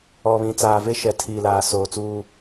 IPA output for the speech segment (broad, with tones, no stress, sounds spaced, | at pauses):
ɔ˨ β ĩ˨ t͡s aː˨ v e˦ ʃ ɛ˨ tʰ iː˨ l aː˨ s oː˨ t͡s uː˦